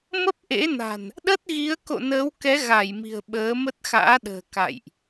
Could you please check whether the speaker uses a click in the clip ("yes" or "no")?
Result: no